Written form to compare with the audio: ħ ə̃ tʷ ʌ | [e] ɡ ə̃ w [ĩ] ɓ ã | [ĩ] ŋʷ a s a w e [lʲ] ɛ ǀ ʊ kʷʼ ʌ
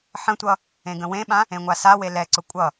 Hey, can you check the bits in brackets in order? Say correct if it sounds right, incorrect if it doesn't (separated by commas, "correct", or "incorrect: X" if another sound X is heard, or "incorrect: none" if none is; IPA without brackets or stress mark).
incorrect: ẽ, incorrect: ẽ, incorrect: ẽ, incorrect: l